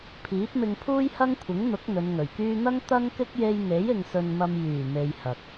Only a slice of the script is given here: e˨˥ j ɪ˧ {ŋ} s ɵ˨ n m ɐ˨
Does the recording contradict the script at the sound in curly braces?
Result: no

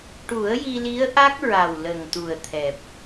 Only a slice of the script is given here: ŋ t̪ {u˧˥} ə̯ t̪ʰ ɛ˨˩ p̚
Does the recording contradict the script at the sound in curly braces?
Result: yes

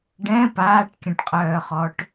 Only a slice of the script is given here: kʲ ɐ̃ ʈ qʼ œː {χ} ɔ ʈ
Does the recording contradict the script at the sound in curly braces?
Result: no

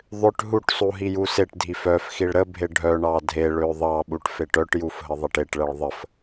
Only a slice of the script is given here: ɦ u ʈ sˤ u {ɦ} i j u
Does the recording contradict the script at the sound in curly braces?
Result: no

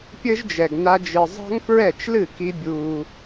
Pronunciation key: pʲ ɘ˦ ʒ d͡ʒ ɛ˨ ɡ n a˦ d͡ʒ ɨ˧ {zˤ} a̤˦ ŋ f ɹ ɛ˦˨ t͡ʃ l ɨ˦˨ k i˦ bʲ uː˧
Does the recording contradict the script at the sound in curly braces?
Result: no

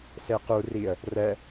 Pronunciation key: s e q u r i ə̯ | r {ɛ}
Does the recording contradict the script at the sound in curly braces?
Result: no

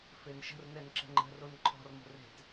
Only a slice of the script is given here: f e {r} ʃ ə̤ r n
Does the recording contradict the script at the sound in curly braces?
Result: yes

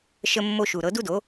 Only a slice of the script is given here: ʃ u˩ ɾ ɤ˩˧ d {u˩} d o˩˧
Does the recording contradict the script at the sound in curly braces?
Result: yes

